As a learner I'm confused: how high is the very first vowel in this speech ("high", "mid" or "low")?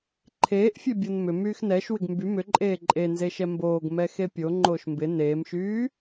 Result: mid